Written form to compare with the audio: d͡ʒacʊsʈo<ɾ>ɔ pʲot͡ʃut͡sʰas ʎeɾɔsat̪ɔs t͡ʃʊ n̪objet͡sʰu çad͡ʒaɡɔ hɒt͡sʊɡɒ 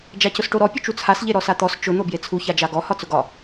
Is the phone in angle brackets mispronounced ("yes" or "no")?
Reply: no